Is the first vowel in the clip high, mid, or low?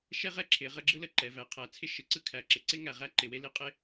mid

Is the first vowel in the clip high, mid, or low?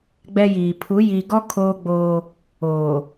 mid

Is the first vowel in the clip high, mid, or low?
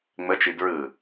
mid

